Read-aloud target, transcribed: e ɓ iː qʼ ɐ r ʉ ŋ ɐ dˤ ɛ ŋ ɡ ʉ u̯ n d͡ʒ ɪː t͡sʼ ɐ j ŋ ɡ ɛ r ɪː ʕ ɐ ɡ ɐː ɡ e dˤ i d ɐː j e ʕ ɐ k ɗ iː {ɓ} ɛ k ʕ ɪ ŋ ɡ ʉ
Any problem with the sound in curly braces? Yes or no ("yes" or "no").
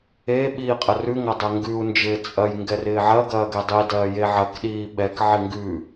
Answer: no